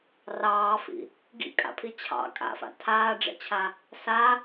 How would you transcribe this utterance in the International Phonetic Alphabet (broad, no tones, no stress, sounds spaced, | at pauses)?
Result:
r ɑː f ḭ | ɡ ḭ kʼ a̰ pʰ i t͡ɕʰ ɑ̰ kʼ a̰ f a̰ tʰ aː ɖ͡ʐ ɛ̰ t͡ɕʰ a | s a